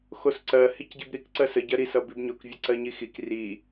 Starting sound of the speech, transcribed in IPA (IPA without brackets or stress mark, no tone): x